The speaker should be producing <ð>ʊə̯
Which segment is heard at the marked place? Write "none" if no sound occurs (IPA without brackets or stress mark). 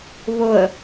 β